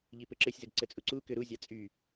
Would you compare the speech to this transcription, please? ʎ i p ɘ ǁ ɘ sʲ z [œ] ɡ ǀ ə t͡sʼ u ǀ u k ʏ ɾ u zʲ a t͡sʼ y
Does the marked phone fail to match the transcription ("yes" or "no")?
yes